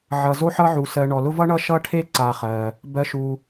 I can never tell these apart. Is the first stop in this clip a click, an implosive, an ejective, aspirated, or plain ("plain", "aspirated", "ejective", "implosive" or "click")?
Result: aspirated